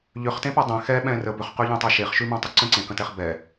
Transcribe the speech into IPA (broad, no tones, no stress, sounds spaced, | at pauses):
ʎ ʏ χ t ẽ p ɛ dˤ ẽ x ɛ ɓ ɛ̃ r ə b ʏ χ q ʉ ʎ ɛ̃ tˤ ɛ ʃ e χ ʃ ʉ m ɛ̃ tˤ ʏ ǀ ə̃ ǀ ẽ k ə̃ t ɛ χ b ɛ